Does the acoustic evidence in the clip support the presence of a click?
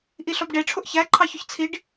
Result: yes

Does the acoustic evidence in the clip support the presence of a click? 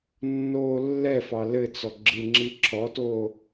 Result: yes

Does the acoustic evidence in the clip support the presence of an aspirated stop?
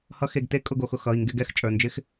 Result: no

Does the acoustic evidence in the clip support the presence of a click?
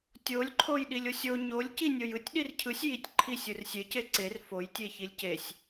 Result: yes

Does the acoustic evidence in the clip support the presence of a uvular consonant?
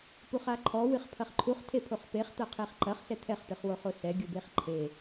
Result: yes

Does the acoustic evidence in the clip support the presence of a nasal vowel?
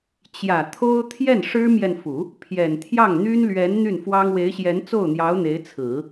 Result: no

